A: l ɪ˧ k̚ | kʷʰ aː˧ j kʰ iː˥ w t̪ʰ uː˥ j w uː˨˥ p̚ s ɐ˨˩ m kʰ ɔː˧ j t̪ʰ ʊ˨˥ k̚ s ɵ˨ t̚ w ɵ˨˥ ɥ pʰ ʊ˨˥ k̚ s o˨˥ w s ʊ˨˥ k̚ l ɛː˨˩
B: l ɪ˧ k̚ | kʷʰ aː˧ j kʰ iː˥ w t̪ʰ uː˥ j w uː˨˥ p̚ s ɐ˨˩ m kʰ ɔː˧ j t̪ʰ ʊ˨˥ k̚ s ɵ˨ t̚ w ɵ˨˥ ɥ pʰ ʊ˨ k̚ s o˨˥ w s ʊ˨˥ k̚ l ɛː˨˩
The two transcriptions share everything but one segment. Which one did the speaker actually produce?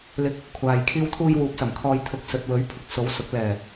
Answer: A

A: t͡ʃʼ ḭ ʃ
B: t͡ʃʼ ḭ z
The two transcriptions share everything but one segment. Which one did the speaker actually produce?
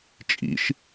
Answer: A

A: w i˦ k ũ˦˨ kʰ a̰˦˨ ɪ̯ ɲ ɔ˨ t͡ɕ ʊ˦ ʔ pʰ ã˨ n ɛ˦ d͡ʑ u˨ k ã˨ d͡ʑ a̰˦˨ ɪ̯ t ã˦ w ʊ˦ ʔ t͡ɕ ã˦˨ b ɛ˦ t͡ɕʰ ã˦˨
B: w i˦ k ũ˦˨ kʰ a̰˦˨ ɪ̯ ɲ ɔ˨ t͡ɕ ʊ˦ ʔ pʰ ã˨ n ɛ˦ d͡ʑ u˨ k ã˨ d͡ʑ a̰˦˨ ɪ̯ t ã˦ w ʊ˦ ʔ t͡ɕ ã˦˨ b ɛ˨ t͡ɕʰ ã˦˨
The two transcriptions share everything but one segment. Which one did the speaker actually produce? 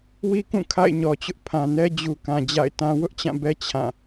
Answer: A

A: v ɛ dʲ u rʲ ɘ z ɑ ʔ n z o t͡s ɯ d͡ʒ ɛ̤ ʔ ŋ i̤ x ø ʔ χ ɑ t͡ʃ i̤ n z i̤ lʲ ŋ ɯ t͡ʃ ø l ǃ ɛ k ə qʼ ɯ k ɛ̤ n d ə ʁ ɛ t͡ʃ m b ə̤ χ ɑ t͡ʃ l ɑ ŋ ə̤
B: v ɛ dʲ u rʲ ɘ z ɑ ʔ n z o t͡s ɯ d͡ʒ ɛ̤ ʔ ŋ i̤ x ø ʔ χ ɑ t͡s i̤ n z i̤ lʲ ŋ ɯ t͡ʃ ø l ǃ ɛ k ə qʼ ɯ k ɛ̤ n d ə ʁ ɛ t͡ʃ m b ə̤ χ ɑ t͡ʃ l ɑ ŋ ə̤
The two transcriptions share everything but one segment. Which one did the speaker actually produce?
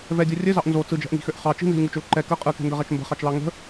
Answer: A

